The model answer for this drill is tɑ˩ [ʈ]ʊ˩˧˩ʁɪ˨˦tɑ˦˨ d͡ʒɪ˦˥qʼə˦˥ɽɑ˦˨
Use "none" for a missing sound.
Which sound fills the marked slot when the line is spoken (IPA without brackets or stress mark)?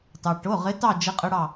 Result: ʈ